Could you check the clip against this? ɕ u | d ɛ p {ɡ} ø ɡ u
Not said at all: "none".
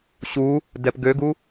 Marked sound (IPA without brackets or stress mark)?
ɡ